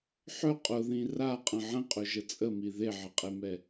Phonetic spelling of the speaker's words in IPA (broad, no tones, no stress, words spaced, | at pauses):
ħɵ qʼʊðĩ raqʼə̃ ʕə̃qʼɵʒə t͡sʼəmi ðeʕɪqʼemɛ